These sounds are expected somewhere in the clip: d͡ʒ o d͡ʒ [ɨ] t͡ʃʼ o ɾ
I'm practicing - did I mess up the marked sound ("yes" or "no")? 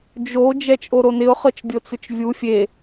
yes